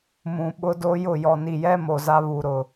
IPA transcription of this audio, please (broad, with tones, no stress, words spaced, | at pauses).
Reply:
mũ˨ ɓʊ˦do˦jʊ˦˨ jɔ˨ni˨jɛ˦ mo˨za˦ βu˨ɾʊ˨